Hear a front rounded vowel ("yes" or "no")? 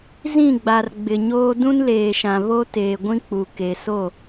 no